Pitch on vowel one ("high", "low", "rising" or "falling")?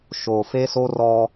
low